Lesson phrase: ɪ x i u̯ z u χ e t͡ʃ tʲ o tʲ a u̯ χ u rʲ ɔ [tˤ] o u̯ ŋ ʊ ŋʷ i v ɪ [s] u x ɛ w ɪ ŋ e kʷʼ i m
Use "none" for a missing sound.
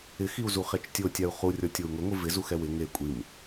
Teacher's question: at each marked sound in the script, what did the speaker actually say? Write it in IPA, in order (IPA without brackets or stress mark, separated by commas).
tʲ, z